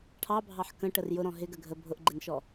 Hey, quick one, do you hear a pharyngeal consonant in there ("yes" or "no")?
yes